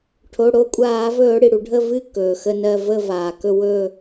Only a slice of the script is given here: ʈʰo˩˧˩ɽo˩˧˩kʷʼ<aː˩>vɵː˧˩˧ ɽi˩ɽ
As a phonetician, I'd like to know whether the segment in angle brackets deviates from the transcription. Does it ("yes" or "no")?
yes